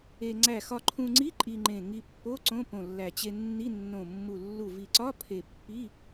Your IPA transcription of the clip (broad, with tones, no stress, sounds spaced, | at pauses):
e˧ ŋ͡ǀ æ˧˩ x ɒ˧ ǃʰ ũ˧ ŋ͡ǀ i˧˥˧ ǃʼ i˧ ŋ͡ǃ ẽ˧˩ ŋ i˧ pː o˧˥˧ ǀ õ˧˥˧ p õ˧˩ lː æ˧˩ t͡ɕ e˧ nː i˧˥˧ nː õ˧˩ mː u˧˩ lː u˧˩ v i˧˩ ǀ ɒ˧˥˧ pʰ e˧˩ pː i˧˥˧